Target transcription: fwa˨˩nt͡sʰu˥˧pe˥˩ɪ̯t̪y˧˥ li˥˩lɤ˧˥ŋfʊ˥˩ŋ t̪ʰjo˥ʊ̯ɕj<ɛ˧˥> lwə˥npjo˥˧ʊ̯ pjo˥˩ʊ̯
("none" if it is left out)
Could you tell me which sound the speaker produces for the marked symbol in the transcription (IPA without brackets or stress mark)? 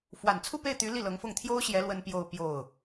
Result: ɛ˧˥